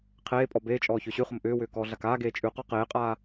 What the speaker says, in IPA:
qʰeːpʼɔ beːt͡ʃʼɔː çʏːɕʉχʊm ʔʏːwʏː kɔːɮakaːɡeː t͡ʃʼʉqɔ qeːqʼaː

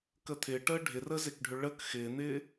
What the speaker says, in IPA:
kət̪ʰɪːʈəː ɖʱɪrəzekɖʱʏ ɭək xɪːn̪ɪː

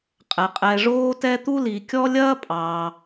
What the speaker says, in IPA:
qʼɛ˩qʼɛ˨ ʐoː˦tɛ˦t̪u˥ li˨kʲɔ˦ lʲɐː˥pʼɑː˨

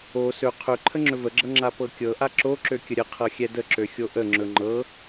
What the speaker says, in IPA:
o sɵ qʰɵ ǃʰəŋ͡ǁɵvəɡ͡ǁɤ ŋ͡ǁapɤkʲɤ ʔaǁo ǁøkʲəɾʲə qʰɤxʲɛdəǁø xʲoʔə ŋ͡ǁɵŋ͡ǃɤ

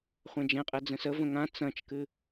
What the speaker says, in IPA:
χʷɛ̃d͡ʒɛ̃qʼɛ d͡zə̃səvə̃ ŋã t͡sɐ̃t͡ʃkɨ

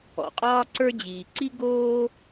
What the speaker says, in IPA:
ɔ̰˩qʼɒː˥ǀə˞˥ d͡ʑiː˩ǀi˥ ɡoː˥

